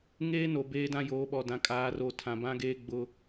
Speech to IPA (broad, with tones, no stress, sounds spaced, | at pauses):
ŋ eː˦ n o˨ b eː˦ d ã˦ j oː˨˦ ɓ ɔ˨ d ã˨ kʼ aː˨˦ r o˨ tʰ ã˨ b ã˦ ɡ eː˦ ɡ͡b ʊ˦